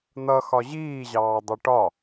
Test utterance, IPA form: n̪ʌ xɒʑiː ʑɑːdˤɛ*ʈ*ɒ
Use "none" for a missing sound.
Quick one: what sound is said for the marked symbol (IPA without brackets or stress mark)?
ʈ